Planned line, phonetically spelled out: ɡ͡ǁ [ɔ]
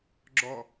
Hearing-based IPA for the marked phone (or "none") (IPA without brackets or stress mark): ɔ